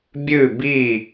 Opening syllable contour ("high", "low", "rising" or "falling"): falling